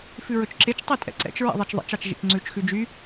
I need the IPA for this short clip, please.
f ʉ ɹ ɵ t͡ʃ ǁ e t͡ʃ tˤ i tʼ ɛ̰ ǀ ɛ̰ t͡ʃ ɹ ɛ̰ ðˤ ɛ t͡ʃ ðˤ ḛ t͡ʃ ɑ t͡ʃ ʒ ḭ t͡ʃ ŋ͡ǀ ʉ t͡ʃ x ʉ d͡ʒ y

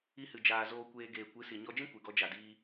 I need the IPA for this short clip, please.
i˧ h ɨ˨ d͡ʒ aː˨ z oː˧ kʷ eː˧ ɡ eː˨ kʷ ɨ˨˦ s i˨ ɲ ɔ˧ d͡ʒ ĩ˦ kʷ e˨ ɡ ɔ˧ d͡ʒ a˨ d iː˧

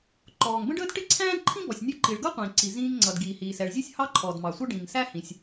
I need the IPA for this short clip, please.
ǃ ɔː˩ ŋ b ə̃˥ ɖ əː˥ d ʈ ɪ˥ ǀʰ æ̃ː˥ d ǃʰ ĩ˥ b ɔ˩ sʲ nʲ ʊ˥ ǃ i˩ ɭ ɡ ʌ˥ qʷ ĩː˩ ǀ i˩ z ĩː˥ ŋ ŋ͡ǀ ʌ˩ d ɡ iː˩ h iː˩ s ɛ˩ ɭ zʲ u˥ sʲ h ɑ˥ ǃʰ ɔː˩ d m ɑ˩ sʷ ʌ˥ ɖ ĩː˩ ŋ s æ˥ h ĩ˩ sʲ

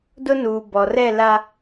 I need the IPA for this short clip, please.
d ʊ˦ n uː˨ b ɔ˨ r ɛ˦˨ l a˨

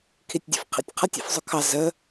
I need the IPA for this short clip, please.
kʰ i tʲ dʲ ṵ f qʰ ḭ tʲ qʰ ʌ tʲ ḭ f zˤ ʊ kʰ ɑ z ə

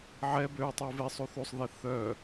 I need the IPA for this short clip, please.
ʕ ɛ b ø u̯ tˤ u v e sˤ u θ u sˤ ð ɛ θ œ

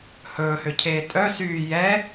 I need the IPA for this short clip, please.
h ɵː h ø cʰ eː tʼ œ s yː j ɛ

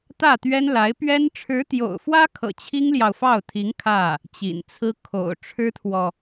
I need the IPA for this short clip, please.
t̪ ä˥˩ t̪ ɥ ɛ˥ n l a˧˥ ɪ̯ p ɥ ɛ˥ n ʈ͡ʂʰ ɻ̩˧˥ t̪ j o̰˨˩ ʊ̯ f w ä˥ kʰ ɤ̰˨˩ t͡ɕʰ i˥ ŋ l j ɑ˨ ʊ̯ f ɑ˥˩ ʊ̯ t̪ʰ i˧˥ ŋ kʰ ä˥˩ | t͡ɕ ḭ˨˩ n t͡sʰ ɹ̩˥ kʰ o̰˨˩ ʊ̯ ʈ͡ʂʰ ɻ̩˥ t̪ʰ w ɔ˨

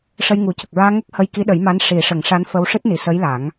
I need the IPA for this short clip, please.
ʂ ə˧ j ŋ u˨˩˦ c ə˨˩ k̚ ɹ aː˧ ŋ ə˦˥ k̚ h ə˧ j k i˧˥ ɗ ə˨˩˦ j m a˧˥ n ʂ i˨˩˦ ʂ ə˨˩˦ ŋ ʂ a˧˥ n f ə˧ w ʂ ɨ˦˥ t̚ n i˨˩ s ə˧˥ j l a˨˩˦ ŋ

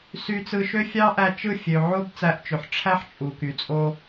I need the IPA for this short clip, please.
s y˧ t͡s ɯ˧ ʃ ø˦ fʲ ɑ˦ ʔ æ˧ t͡ʃ ɯ˦˨ fʲ ø˧ ʕ o˦ b t͡s æ˧ ʔ t͡ʃ ø˨ ħ ʈ͡ʂʰ æ˦ ħ t͡ʃʼ u˨ k y˨ t͡sʼ o˧

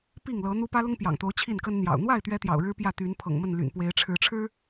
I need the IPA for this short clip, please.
p i˥˨ ŋ l ɤ˨˦ n̪ u˦ p ä˦ l ʊ˦ ŋ p j ɑ̰˨˩ ŋ t̪ o˨˦ ʊ̯ t͡ɕʰ i˥˨ n k ə˦ n n̪ j ɑ̰˨˩ ʊ̯ n̪ w a˥˨ ɪ̯ t̪ ɥ ɛ˦ t̪ j ɑ̰˨˩ ʊ̯ ɻ ɻ̩˦ p j ä˥˨ t̪ y˨˦ n pʰ ɤ̰˨˩ ŋ m ə˥˨ n l y̰˨˩ n p w e˨˦ ɪ̯ ʈ͡ʂʰ ɻ̩˨˦ ʈ͡ʂʰ ɻ̩˦

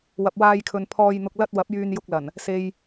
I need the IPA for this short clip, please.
w ɐ˨ p̚ w aː˧ j kʰ ɵ˨ n pʰ ɔː˨ j n̪ ʊ˨ k̚ l ɐ˧ t̚ w ɐ˨˥ p̚ j yː˧ n j ʊ˧ k̚ l ɐ˨˩ n | s e˨ j

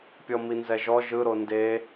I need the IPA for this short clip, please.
pʲ ɔ m i n z ɛ ʒ ɔ ʒ ɯ ɾ o n d e

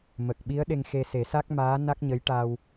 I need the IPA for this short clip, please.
m ə˨˩ k̚ ɓ i˧˥ ə̯ ɗ e˧ ŋ x e˧ s e˨˩˦ s a˦˥ k̚ m aː˧˥ n a˦˥ k̚ ɲ ə˧˥ j ʈ a˧ w

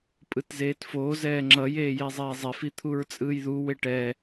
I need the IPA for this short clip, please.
pʼ ɯ t z eː t f oː z ɛː ŋ͡ǁ ʌ j eː j e zˤ eː zˤ e f i t̪ʰ u ɹ t͡sʼ ɯː j ð u w e ʈ ɛ

